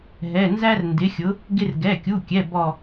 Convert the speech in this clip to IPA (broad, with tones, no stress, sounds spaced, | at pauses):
ɦ ɛ˩˧˩ n z æ˥ r n d ɪ˩˥ xʲ ʊ˩˥ | ɡ ɪ˥ r ɡ ɛ˩˧˩ kʲ u˩˧˩ kʲ ɛ˩˧˩ b ɔ˧˩